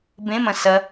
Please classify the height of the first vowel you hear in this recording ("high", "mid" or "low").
mid